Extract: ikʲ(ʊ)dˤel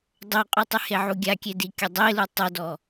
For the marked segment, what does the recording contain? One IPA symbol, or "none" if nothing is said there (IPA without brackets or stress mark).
ʊ